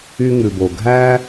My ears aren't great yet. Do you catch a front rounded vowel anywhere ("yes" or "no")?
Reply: yes